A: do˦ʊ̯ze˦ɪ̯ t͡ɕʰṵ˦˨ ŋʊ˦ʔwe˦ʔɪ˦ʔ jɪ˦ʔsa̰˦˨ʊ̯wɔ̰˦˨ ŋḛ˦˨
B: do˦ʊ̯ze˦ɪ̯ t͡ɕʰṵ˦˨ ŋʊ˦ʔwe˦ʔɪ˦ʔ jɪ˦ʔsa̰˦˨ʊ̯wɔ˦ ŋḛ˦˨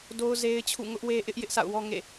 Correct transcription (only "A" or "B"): B